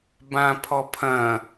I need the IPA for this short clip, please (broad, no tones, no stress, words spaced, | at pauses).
bãpʰɔpʰɐ̃